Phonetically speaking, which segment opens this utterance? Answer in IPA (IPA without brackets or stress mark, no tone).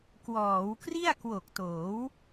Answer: k